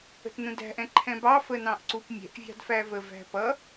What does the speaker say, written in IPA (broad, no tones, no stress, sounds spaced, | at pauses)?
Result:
ə̤ t n ũ d æ̤ ʔ ɛ̃ ǃʰ ɛ̃ b ɑ f ə n ɑ̃ ʔ ǀ u p mʲ ɛ̤ ʔ vʲ ɑ̤ d f æ v ə v æ̤ p ʌ